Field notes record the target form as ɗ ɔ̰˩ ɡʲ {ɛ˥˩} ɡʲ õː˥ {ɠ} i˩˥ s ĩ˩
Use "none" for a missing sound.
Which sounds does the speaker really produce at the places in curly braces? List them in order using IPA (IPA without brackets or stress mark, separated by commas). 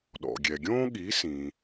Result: ɛ˩, ɠ